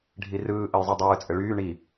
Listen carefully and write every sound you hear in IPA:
ɖʱ i r ɯː ʔ ə j zˤ i dˤ ɯː t͡sʼ ɘ ɭ yː ɳ i

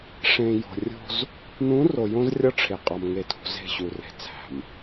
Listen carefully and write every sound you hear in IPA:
ʂ ẽ˨ j o̤˨ rʲ o̤˦ z | n ũ˨˦ r o˨ j õ˦ z rʲ ɒ˦ ʈ͡ʂʰ e˨ qʼ ɒ˦ m ŋ e˦ tʰ ṳ˦ z e̤˦˨ ɕ u˨ r e̤˨ t͡sʰ æ̤˨ m

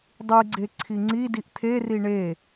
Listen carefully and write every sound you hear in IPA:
dˤ y ɡ͡ǀ e ǀʰ i ŋ͡ǀ i d i ʔ t̪ʰ e r i ɳ e

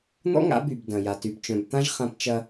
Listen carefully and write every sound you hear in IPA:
n̪ ɔ̰˦ ŋ a̰˨˦ b y˨ b d ɐ̃˨ j a˨ t y˨ b t͡ʃ œ̃˨ b t̪ ã˦ ʒ χ ã˦ p t͡ʃ ɐ˦

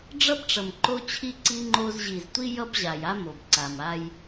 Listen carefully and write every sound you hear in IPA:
ɖ͡ʐ ʌ˦ b ʈ͡ʂ ʌ˨ m ǃ o˦ t͡ɕʰ i˦ ǀ i˦ ŋ͡ǃ o˦ z ʑ i˨ z tʷ i˦ j ʌ˦ b ʑ a˨ j a˦ m o˨ b ǀ a˨ m a˦ j

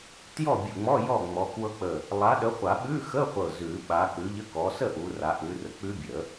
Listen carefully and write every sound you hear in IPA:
t j ɔ˥˨ bʲ u˧˩ ŋ͡m ɔ˧˥˧ j ɔ˥˨ ŋ͡m ɔ˨˦ k w ɤ˦˥ k͡p ə˧˩ | lˠ a˨˦ ɗ ə˨˦ χʷ a˨˩˦ ɓ ʉ˧˥˧ x ə˧˥˧ χʷ ɤ˧˩ z ʉ˨˩˦ ɓ a˨˦ k͡p ʉ˨˦ ʎ ə˧˥˧ k ɔ˨˦ s ə˥˨ ʔ u˨˦ r a˨˦ ʔ ʉ˨˦ r ə˨˦ k͡p ʉ˦˥ bʲ ə˨˩˦

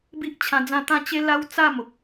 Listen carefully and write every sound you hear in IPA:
b i˦ ʔ t͡ɕʰ ã˧ d͡z ã˥˧ t̪ ã˥˧ t͡ɕ e˦ l a˦ w t͡s a˥˧ m o˨ k̚

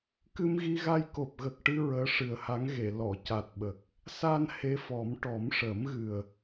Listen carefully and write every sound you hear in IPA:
k ɨ˧ m ɣ i˧ ɣ a˧ j k o˨˩ p̚ ɣ ə˨˩ k̚ ʈ ɨ˧ ɹ əː˧˥ ʂ ɨ˨˩ ə̯ h a˧˥ ŋ ɣ e˨˩˨ l ɔ˨˩˨ c a˨˩ t̚ ɓ ə˨˩ k̚ | s a˧ n h e˧˥ f ɔ˨˩˦ m ʈ ɔ˨˩˦ m ʂ əː˨˩˦ m ɣ ɨ˨˩ ə̯

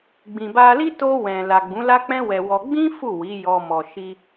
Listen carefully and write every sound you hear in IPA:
ɡ͡b ĩ˨ b a˧ l i˦ t o˧ w ɛ̃˨ l a˨ ɡ͡b ũ˨˦ l a˦ k͡p ɛ̃˦ w ɛ˧ w ɔ˧ ɡ͡b ĩ˦ f u˦˨ w i˨˦ j ɔ˧ m ɔ˨ ʃ i˧

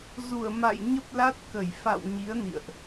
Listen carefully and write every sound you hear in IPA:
z u˧˩ ə̯ m a̰˧˨ j ɲ ə˦˥ p̚ l a˦˥ t̚ k ə˧˩ j f a̰˧˨ w ɲ i˨˦ ə̯ n ḭ˧˨ ə̯ ʔ

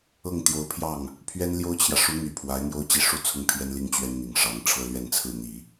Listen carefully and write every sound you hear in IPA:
ɤ˥˩ ŋ t̪ j o˧˥ ʊ̯ pʰ j ɑ˥˩ ŋ | pʰ ɥ ɛ˥ n l j o˥ ʊ̯ t͡ɕʰ j ä˨ ʂ u˧˥ n̪ y˨˩ pʰ w a˧˥ ɪ̯ n̪ j o˥ ʊ̯ t͡ɕ i˥˧ ʂ u˥˧ t͡sʰ ʊ˥˩ ŋ pʰ j ɛ˥ n l i˥˩ ŋ t͡ɕ ɥ ɛ˥ n n̪ i˨˩ ŋ ʂ ɑ˧˥ ŋ ʈ͡ʂʰ ɤ˥ l ɥ ɛ˥˧ n t͡sʰ ɹ̩˥˩ n̪ i˨˩˦

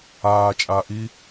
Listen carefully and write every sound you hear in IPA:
aː t͡ʃʼ aː ʔ i

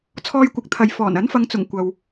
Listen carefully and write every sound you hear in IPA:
t͡sʰ ɔː˧ j kʷ ɪ˨˥ k̚ t̪ʰ ɐ˨ j f ɔː˨˩ n ɐ˨˥ n f ɐ˨˧ ŋ t͡s ʊ˨˩ ŋ kʷ ɐ˨ w

